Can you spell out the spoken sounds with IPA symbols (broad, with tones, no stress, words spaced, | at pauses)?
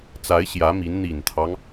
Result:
t͡sa˧˥ɪ̯ ɕjä˧˥mi˧˥n n̪i˨˩nt̪ʰɑ˦ŋ